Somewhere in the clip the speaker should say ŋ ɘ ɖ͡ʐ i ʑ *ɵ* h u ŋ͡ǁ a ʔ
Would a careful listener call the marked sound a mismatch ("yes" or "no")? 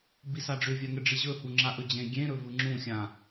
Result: no